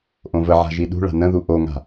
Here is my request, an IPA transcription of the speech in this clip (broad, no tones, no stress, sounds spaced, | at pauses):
ʔ õ v ə ʕ a̤ ʒ i ɗ ṳ ɭ a̤ n ə̃ ð u ʔ o ŋ a̤